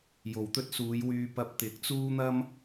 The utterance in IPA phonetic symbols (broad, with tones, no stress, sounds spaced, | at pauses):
j o˨ w t̪ ɵ˥ t̚ s uː˨˧ j w yː˧ p ɐ˧ p̚ t̪ ɪ˨˥ k̚ t͡s uː˥ n̪ ɐ˥ m